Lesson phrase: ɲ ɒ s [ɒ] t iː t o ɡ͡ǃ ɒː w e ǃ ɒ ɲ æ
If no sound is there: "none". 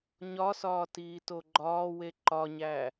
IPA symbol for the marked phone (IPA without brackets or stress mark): ɒː